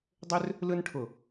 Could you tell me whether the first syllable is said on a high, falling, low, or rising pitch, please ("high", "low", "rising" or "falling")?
high